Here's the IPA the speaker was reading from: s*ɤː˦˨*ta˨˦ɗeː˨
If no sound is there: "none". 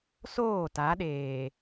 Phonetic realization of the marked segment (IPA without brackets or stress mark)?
oː˦˨